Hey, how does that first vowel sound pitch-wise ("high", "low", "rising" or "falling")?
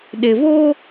low